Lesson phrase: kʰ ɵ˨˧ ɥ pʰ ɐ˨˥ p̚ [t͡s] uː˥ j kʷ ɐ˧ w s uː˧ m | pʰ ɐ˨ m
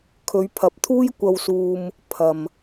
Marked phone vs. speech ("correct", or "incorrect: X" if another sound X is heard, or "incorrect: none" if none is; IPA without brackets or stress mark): incorrect: t̪ʰ